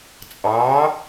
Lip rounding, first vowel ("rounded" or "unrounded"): unrounded